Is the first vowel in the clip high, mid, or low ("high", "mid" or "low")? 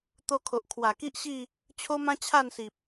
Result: mid